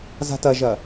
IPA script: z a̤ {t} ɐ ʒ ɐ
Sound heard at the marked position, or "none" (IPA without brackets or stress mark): t